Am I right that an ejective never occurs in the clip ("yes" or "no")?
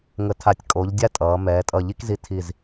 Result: no